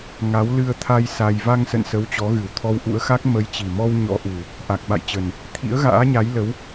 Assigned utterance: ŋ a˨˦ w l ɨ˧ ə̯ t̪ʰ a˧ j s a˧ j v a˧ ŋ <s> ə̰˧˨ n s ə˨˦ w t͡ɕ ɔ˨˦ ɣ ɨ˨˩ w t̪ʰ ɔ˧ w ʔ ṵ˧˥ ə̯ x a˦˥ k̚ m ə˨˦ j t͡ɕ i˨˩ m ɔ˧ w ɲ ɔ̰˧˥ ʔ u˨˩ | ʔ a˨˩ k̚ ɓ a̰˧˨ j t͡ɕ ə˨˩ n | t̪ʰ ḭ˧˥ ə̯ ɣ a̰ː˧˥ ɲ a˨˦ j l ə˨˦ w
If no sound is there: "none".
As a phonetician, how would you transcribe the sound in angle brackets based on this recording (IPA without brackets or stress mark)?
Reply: s